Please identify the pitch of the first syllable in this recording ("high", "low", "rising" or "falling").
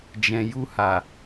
low